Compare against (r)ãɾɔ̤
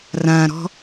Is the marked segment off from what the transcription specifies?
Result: no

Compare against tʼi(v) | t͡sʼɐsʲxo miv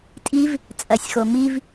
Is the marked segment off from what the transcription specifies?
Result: no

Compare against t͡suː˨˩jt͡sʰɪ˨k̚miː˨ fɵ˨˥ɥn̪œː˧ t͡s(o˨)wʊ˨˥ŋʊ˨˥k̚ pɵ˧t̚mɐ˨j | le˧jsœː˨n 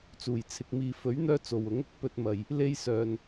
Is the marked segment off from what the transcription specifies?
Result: no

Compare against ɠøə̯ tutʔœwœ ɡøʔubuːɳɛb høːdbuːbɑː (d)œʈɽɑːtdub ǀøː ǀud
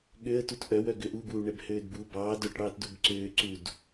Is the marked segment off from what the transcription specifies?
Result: no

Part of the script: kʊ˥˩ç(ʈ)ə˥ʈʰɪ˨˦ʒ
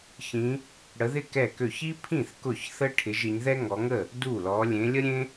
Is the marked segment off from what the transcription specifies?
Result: yes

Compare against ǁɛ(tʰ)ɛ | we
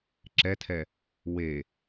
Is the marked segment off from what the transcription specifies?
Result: no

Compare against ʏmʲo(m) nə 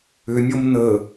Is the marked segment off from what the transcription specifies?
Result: no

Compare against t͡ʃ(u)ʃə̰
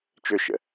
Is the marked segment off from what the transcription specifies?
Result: yes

